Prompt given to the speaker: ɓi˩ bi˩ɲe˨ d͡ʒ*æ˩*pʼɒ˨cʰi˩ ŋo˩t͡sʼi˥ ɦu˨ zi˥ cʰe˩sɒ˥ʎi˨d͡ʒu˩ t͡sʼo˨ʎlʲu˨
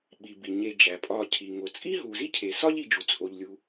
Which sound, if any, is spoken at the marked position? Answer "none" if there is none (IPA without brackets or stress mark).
æ˩